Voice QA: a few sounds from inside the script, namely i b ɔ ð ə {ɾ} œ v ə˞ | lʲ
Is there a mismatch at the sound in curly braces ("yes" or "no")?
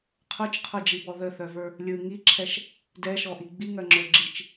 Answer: yes